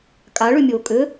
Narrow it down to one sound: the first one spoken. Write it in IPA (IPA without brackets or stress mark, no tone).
kʼ